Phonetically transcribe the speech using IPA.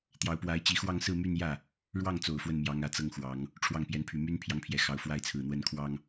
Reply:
t̪ j ɑ˧˥ ʊ̯ p w a˧˥ ɪ̯ t͡ɕ i˧˥ x w ɑ˥˧ ŋ s ɹ̩˥˧ m y˥˧ n j ä˥˩ | ɻ w ɑ˥˩ ŋ t͡s o˨˩ ʊ̯ f w ə˥˩ n m j ɑ˧˥ ŋ ä˨˩ t͡s ɤ˥˩ ŋ x w ɑ˧˥ ŋ | ʈ͡ʂʰ w ɑ˥˩ ŋ p j ɛ˧˥ n pʰ y˨˩ m y˥ n pʰ j ɑ˧˥ ŋ pʰ j ɛ˨˩ x ɑ˧˥ ʊ̯ f w a˥ ɪ̯ t͡sʰ ɹ̩˨˩ n̪ w ə˥ n kʰ w ɑ˥ ŋ

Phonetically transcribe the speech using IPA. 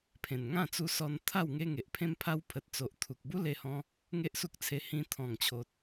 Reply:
pʰ ẽ˨˩ n ŋ ã˥˧ t͡s u˧ s ɔ˧ n t̪ʰ a˥˧ w ŋ e˧ ŋ e˨ ʔ pʰ ẽ˧ m pʰ a˧ w pʰ ə˨ t̚ t͡s o˨ ʔ t̪ʰ u˨ k̚ b u˦ l e˧ h ɔ̃˧ | ŋ e˦ ʔ s u˦ k̚ t͡sʰ e˧ h ĩ˧ t̪ʰ ɔ̃˨˩ ŋ t͡ɕʰ o˨ t̚

